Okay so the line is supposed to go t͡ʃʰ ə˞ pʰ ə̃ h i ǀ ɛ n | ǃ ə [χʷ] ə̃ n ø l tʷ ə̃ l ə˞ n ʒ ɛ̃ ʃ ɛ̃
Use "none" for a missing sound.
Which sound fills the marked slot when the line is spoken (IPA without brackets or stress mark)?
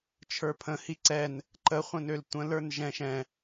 χʷ